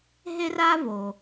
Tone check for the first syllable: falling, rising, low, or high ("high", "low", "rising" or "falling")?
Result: high